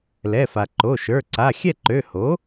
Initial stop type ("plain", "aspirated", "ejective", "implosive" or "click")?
click